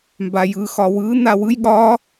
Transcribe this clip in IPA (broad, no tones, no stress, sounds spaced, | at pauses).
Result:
m b a j ɯ x ɒ w ɯ n a w ɯ j ɠ ɒ